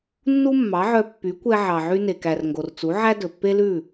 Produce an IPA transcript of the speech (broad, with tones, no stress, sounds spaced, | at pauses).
nː u˥ mː ɑ˩˥ ʕ œ˧ pː y˩˥ kʷ ɛ˧ ʕ ɑ˩ ʕ y˧ n e˩ k æ˩ r ŋ ɡ o˩ r t͡s u˩˥ ʕ æ˥ d ɵ˩ pː e˥ l ʉ˥˩